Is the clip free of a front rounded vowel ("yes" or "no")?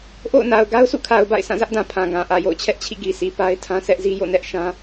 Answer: yes